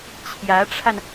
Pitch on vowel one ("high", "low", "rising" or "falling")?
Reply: rising